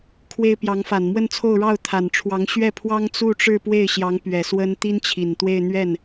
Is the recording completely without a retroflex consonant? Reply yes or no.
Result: no